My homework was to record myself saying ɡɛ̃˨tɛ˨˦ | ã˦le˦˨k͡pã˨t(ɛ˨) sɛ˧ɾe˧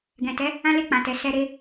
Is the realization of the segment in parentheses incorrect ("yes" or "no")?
no